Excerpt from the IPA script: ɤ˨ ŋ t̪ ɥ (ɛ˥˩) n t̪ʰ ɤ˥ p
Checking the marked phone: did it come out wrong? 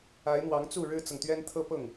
yes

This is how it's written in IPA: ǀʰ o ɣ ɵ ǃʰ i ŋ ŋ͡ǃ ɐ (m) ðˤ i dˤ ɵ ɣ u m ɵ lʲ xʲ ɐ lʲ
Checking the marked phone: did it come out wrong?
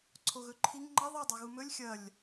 yes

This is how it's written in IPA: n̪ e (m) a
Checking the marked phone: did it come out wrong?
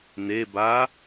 yes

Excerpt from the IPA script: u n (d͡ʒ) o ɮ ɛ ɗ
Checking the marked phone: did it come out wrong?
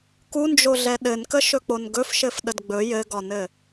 no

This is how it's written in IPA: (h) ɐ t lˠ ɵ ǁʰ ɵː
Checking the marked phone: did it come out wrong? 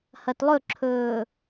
no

